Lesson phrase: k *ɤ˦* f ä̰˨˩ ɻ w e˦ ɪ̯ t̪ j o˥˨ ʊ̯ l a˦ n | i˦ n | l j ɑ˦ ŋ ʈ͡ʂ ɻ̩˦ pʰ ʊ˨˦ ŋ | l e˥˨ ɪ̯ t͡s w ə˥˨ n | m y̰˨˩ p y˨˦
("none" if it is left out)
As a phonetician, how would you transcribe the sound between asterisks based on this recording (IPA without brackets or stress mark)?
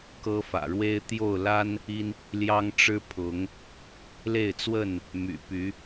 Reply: ɤ˦